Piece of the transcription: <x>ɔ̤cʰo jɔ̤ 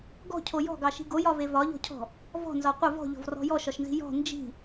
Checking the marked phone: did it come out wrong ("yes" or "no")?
yes